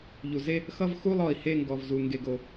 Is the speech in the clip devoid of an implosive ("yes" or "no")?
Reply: yes